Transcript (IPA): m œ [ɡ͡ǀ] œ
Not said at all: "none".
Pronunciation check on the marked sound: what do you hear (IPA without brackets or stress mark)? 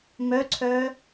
ǀʰ